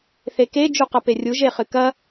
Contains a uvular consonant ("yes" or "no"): yes